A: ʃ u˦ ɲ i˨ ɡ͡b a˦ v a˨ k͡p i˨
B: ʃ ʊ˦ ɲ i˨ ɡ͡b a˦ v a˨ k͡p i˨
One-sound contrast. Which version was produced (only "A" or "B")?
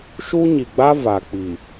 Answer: A